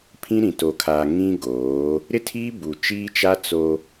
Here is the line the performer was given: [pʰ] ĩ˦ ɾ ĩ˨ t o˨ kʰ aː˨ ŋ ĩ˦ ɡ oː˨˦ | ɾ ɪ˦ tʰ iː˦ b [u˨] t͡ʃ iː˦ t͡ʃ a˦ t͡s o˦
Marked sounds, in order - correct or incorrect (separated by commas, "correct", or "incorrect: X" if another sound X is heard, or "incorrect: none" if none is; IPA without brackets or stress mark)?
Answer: correct, correct